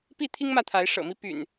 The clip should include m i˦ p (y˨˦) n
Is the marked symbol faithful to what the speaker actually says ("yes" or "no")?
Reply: no